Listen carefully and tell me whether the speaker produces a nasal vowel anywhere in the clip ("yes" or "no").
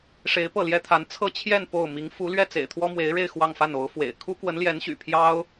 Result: no